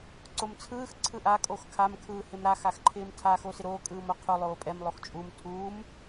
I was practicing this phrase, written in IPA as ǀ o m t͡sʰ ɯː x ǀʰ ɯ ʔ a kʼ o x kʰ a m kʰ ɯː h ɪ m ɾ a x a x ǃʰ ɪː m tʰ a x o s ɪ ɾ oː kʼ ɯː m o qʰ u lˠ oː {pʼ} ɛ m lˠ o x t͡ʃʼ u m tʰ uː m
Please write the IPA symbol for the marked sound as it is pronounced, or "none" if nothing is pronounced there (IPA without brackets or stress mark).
pʼ